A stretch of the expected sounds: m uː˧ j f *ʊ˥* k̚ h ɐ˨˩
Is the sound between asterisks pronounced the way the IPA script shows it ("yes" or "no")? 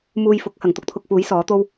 no